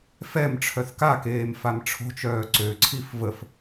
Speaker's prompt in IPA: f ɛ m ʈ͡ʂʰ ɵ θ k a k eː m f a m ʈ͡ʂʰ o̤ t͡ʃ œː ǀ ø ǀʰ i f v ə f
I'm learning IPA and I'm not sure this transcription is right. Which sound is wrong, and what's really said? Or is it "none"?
ɵ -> œ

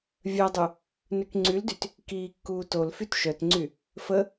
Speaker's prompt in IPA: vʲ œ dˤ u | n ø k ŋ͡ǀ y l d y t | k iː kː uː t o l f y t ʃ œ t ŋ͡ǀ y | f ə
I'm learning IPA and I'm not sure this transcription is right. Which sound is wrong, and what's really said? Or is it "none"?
none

